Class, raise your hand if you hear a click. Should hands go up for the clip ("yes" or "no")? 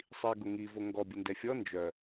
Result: no